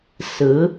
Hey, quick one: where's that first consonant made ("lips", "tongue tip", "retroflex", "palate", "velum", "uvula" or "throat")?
tongue tip